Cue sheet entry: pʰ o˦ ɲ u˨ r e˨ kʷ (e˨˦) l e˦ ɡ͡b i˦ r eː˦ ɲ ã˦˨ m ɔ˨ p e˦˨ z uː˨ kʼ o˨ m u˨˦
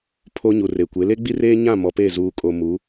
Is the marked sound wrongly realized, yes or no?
no